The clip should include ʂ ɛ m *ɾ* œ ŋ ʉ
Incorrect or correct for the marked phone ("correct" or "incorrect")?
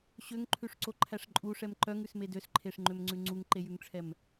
incorrect